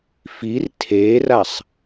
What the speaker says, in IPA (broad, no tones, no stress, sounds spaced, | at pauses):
f i r tʰ e r a sˤ